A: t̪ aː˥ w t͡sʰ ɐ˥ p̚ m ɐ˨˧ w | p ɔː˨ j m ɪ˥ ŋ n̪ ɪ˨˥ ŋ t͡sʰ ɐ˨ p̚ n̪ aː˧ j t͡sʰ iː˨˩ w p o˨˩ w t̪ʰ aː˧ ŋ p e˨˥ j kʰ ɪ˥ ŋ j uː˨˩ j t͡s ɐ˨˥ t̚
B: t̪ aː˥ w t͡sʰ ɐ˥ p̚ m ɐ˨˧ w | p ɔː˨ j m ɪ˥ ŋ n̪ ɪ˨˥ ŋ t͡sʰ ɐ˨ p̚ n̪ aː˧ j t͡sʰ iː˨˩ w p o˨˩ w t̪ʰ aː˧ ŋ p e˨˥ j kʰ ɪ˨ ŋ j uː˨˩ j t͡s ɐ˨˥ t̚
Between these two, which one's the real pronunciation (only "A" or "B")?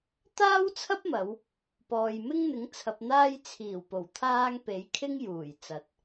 A